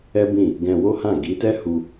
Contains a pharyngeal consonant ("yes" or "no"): no